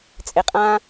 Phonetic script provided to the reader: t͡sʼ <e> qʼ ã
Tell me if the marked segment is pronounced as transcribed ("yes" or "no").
yes